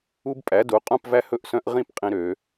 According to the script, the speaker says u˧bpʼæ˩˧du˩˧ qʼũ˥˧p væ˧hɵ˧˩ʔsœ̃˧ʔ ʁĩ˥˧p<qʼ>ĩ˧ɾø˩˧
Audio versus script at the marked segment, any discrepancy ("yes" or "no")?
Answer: no